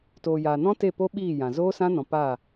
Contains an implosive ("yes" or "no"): yes